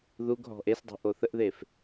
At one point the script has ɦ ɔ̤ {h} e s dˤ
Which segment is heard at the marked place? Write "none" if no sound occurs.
ʔ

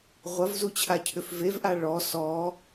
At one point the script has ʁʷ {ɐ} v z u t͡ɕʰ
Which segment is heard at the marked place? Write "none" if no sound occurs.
ɐ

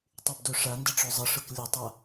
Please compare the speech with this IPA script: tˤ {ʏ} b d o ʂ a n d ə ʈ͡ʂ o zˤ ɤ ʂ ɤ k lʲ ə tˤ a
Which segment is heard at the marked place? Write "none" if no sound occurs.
y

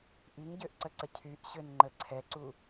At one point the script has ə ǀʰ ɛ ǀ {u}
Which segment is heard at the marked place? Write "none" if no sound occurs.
u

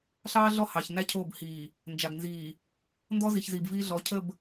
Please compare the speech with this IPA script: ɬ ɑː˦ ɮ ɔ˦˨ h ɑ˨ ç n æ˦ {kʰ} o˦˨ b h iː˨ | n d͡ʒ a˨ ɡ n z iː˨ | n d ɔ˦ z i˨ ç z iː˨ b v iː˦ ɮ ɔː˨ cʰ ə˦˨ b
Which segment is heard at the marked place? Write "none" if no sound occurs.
cʰ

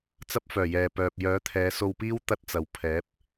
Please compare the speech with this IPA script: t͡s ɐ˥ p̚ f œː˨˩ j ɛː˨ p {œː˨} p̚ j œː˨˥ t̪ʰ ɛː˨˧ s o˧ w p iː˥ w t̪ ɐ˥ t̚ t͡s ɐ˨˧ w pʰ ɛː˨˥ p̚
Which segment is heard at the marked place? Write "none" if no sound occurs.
œː˨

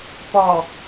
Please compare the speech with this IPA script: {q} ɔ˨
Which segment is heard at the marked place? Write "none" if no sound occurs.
p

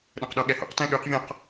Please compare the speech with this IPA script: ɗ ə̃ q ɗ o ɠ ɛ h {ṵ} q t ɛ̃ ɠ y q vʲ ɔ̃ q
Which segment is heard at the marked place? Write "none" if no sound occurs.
ṵ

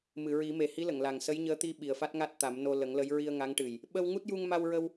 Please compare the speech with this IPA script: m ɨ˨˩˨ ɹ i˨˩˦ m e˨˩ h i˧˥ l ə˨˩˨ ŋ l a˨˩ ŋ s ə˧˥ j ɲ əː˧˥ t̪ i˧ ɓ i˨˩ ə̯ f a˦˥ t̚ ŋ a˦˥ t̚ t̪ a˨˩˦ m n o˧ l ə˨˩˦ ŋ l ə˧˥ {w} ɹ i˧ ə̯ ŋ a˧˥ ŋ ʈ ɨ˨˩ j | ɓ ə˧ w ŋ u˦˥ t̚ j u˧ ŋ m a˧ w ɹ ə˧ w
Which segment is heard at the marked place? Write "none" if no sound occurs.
j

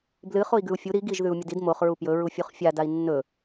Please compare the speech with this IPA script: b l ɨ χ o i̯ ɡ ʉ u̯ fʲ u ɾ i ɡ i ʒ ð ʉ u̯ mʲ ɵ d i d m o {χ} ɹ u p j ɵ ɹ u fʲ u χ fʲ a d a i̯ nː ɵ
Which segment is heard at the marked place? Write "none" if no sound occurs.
χ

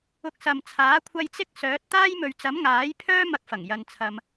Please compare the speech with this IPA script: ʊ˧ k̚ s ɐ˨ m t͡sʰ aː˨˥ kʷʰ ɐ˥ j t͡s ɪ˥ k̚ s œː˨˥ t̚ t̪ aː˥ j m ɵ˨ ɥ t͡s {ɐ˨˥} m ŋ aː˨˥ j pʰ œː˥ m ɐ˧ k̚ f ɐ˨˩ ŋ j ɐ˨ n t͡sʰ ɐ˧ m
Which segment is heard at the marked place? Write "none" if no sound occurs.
ɐ˨˥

